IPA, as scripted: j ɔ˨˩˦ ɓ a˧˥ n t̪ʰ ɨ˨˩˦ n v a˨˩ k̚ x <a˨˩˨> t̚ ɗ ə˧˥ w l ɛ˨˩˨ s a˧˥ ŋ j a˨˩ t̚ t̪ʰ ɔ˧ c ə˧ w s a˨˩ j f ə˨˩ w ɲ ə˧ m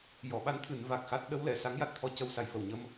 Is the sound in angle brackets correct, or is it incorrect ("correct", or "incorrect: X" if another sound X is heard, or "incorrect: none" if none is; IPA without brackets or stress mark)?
incorrect: a˦˥